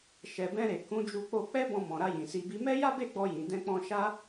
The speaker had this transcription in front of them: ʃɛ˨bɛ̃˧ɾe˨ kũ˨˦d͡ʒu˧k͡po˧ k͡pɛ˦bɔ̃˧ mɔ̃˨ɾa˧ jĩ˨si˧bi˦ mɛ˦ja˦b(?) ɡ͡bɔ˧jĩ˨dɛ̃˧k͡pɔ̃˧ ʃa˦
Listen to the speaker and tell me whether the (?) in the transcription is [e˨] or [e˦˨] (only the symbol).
e˦˨